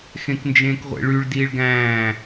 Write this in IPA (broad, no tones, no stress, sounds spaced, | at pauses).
x ẽ k n d͡ʒ ẽː k ʁʷ ḛ ɭ y ɭ d iː ɭ ɡ æ̃ː